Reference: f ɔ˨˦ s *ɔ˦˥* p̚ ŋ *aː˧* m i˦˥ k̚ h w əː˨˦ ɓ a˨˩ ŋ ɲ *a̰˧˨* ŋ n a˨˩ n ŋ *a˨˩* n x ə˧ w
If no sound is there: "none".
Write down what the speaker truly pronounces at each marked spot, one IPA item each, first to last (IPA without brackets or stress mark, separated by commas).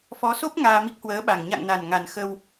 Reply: o˦˥, aː˧, a̰˧˨, a˨˩